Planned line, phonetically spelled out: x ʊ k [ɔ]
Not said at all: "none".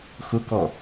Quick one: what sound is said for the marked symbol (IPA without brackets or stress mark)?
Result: ɔ